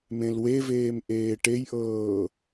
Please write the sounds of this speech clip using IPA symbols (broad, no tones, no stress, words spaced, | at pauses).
mẽlweveːm ʔeːʈejʔɤː